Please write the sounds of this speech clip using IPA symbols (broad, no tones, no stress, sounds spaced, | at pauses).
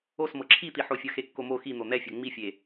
o s m ɤ ǁʰ i t̪ i ħ o fʲ ɤ x e kː o m o x i n̪ o n̪ ɛ fʲ ɤ ŋ͡m i fʲ e